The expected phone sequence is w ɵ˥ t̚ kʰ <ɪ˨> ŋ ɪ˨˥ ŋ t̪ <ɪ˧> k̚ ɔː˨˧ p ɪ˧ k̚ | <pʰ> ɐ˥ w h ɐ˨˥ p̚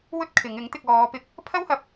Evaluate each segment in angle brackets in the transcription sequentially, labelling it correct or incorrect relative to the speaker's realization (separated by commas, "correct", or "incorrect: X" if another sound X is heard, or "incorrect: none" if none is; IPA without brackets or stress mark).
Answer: incorrect: ɪ˨˧, correct, correct